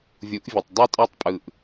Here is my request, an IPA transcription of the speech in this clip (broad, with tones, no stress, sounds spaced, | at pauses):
vʲ u˨˦ ʔ vʲ ɯ˨ tˤ dˤ ø˦ tʼ ɑ˦ tˤ pʼ ɯ˧ ʔ